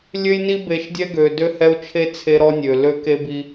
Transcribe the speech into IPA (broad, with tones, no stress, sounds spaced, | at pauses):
lʲ ø˦ j n i˦ b e˨˦ ʃ dʲ ɛ˦ ɡ ø˨ d ø˦ h ɛ˦ u̯ t͡ʃʰ e˦ t͡sʰ e˦ ɾ ɔ˦ nʲ ø˨ l ø˦ k e˦ b i˦